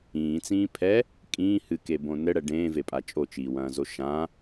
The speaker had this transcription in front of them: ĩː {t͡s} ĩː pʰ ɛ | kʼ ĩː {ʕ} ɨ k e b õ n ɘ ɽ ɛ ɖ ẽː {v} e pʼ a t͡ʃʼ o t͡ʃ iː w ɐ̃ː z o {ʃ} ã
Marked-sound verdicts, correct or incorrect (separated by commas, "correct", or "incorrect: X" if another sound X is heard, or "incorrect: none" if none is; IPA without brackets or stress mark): correct, incorrect: h, correct, correct